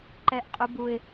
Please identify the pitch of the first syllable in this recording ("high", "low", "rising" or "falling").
high